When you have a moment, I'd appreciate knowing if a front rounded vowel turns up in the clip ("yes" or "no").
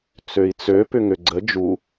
yes